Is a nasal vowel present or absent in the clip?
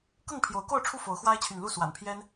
absent